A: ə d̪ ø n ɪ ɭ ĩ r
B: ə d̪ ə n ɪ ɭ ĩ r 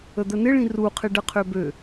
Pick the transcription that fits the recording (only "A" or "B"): B